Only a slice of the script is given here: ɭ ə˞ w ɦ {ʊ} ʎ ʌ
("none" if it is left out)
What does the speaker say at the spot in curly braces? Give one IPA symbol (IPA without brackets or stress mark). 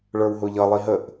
ʊ